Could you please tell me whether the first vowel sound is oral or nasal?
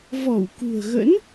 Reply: oral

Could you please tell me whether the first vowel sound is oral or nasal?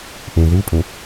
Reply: nasal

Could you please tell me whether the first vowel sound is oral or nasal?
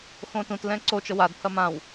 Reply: nasal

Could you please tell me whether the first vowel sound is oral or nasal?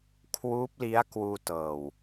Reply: oral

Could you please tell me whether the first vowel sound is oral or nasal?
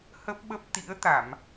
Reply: oral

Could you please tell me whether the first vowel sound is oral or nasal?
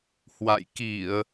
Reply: oral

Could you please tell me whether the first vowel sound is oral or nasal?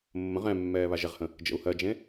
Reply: nasal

